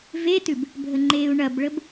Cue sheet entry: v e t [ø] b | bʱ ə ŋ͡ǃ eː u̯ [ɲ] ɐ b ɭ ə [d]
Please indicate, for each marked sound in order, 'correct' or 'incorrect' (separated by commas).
incorrect, incorrect, incorrect